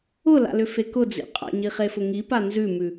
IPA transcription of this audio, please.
ʊla̰lʏfe kʊd͡zḭ qʼa̰ɲiχefʊ ŋipa nzʉmʉ

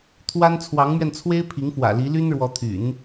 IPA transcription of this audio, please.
t̪ʰwa˥n t͡sʰwɑ˧˥ŋmɥɛ˧nt͡sʰwe˥ɪ̯ pʰi˧˥ŋfwä̰˨˩li˧˥ ly˥nɻwɔ˧˥t̪ʰy̰˨˩˦n

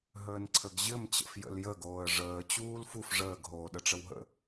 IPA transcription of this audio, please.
ɦəːnǀʰəɡʑɘm t͡ɕə̰fjə̰ljə ɡoːə̯ʐəː t͡ɕuːlfuf ʐəːɡ ɦoːɗəʈ͡ʂəwɦə̰

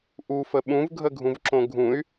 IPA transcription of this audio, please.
ʔufə ɓũvɡʱəɡʱũvǁõ ɡʱũy̯

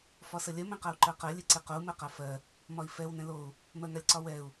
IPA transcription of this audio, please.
fɒsəlʲɜ mɛ̃qau̯ǃɜqɜ lʲeǀeqou̯ mɜqafɜ | mɒi̯fɛw nɛ̃lou̯ | mɜŋalʲǀɒwɛu̯

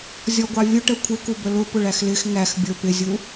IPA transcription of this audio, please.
zʲɔɡʷɑvʲʊʈə kʷʰɪku bəlʊ pʊɭæxlɪx ŋæx bʲə˞pɪzʲu

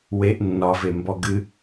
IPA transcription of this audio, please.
weʔ nːɒvembɔ ɡɨ

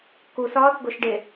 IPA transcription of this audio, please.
kusɒːθ ɡoʃɖe

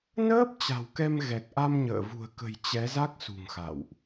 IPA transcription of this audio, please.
nəː˦˥p̚ t͡ɕa̤˨˩wkɛ˧mɣɛ˨˩k̚ʔa˧m ɲə̰ː˧˨vṳ˨˩ə̯kə̤˨˩j t͡ɕɛ˨˦za˦˥k̚ sṳ˨˩ŋxa̰˧˨wʔ

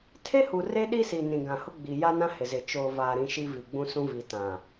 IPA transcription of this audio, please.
tʰe˦hu˨ re˦ɗi˦si˨ nĩ˨ɡã˨hʊ˦ɡ͡bi˨ ja˦nã˦ hɪ˨zɪ˨ t͡ʃoː˨vaː˨ɾĩ˨ ʃi˦vi˨ɡ͡bũ˦sũ˦ vi˨tã˨

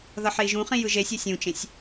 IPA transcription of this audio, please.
ðʌħei̯ʒũχĩ jɯʒesʲɛ sʲũt͡ʃẽsʲ

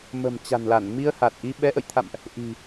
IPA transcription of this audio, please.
mə̤˨˩m t͡ɕa̤˨˩nla˧˩n mi˧ə̯ha˨˩t̚ʔi˧ ɓɛ˨˦ʔə̰˧˨jt̪ʰa̰˧˨mʔ | ʔi̤˨˩

